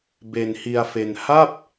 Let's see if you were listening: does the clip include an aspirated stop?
no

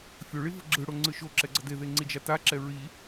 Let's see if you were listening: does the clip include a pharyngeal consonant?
no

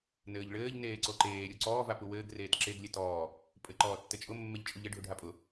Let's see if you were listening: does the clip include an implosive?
no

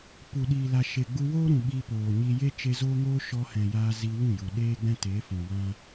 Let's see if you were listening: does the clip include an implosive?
yes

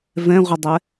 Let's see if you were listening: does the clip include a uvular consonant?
yes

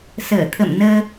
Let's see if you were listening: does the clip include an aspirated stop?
yes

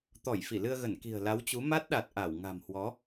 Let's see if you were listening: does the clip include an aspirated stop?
no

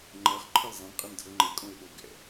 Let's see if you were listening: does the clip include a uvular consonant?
yes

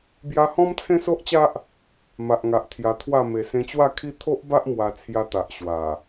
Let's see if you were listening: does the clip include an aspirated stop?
yes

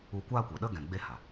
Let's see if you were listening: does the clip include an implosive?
yes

